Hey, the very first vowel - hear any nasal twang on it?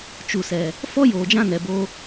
no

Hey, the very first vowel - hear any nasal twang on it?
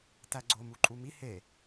no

